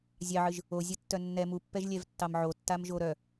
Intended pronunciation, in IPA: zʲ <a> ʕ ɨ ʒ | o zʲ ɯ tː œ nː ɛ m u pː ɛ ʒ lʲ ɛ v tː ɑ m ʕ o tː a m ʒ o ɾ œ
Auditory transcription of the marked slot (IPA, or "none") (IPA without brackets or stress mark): ɑ